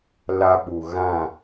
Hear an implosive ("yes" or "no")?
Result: yes